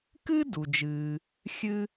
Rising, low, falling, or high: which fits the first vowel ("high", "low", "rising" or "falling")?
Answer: high